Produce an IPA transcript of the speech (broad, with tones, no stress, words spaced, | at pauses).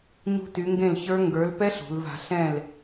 ɲṳ˦˥ty˨˥ŋɡẽ˥˨lçə˞˦˥ ŋɡə˞˨˥lpɛ˦˥ɬ ṳ˩˧lva̤˧ɬɛ̃˥˨l